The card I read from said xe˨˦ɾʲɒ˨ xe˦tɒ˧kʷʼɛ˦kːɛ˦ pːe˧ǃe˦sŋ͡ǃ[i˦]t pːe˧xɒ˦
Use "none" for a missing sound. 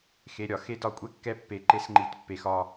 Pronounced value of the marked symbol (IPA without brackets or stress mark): i˧